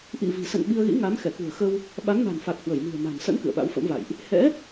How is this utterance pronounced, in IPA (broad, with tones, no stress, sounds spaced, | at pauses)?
ʔ ḭ˧˨ v i̤˨˩ s ə̰˧˨ n ɓ i˧ ə̯ ɣ ḭ˧˥ ŋ a˨˦ m x ɛ˧˩ k ṳ˨˩ ə̯ x ə˧ w | ɓ a˨˦ ŋ n a̤˨˩ n f a˨˩ k̚ h w ə˧˩ j m i̤˨˩ ə̯ m a̤˨˩ n s ə̰˧˥ n k ɨ̰˧˨ ə̯ ɓ a̰˧˥ w f ə̰˧˥ m v a̰˧˨ j ʔ | h ɛ̰˧˥